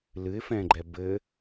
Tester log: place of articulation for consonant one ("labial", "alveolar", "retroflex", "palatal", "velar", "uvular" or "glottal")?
alveolar